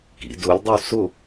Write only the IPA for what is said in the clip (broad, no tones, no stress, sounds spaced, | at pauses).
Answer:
k ḭ d ʊ lʲ dˤ u s ʊ